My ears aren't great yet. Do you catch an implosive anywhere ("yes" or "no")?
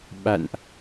yes